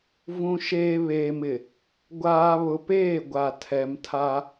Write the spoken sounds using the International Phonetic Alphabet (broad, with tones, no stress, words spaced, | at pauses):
vũ˨ ʃeː˨ βeː˨mɪ˨ | ɡʷaː˨ βʊ˨peː˦˨ɡʷa˨ tʰɛ˨mtʰa˦